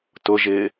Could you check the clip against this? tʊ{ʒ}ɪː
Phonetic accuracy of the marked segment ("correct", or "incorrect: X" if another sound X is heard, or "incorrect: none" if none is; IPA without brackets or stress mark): correct